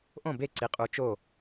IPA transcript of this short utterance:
ʔõ˦˨be˦˨ǀi˨˦qʼu˨˦ t͡ʃo˦˨

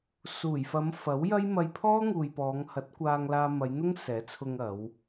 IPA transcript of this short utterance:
suː˨˩jfɐ˨˧m fɐ˨˥wjɐ˥j mɐ˧jpʰɔː˥ ŋuː˨jpɔː˨˧ŋ hɐ˨˥t̚kʷaː˧ŋlaː˧ mɐ˨˧jn̪ʊ˥ŋ sɛː˨˥t͡sʰʊ˧ŋɐ˨˧w

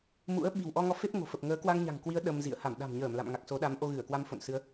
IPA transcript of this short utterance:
mṵ˧˥ə̯ ɓi̤˨˩wʔɔ˧ŋɔ˧ fe˦˥p̚ŋo̤˨˩fə˨˩p̚ŋəː˨˦ kwa˧ŋɲa̤˨˩ŋkwi˨˦ə̯ ɗə˧mzḭ˧˨ə̯ ha˧˩mɗa̤˨˩mɲəː˧˩m la̰˧˨mŋa˨˩k̚so˨˦ ɗa˨˦mʔo˧ɣɨ˧˩ə̯kwa˧m fo̰˧˨nsɨ˨˦ə̯

